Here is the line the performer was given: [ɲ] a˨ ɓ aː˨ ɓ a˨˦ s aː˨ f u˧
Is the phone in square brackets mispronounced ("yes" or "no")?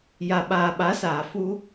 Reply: yes